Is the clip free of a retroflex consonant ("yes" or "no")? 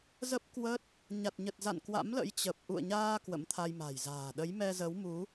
yes